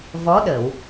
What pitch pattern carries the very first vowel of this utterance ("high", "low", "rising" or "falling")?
rising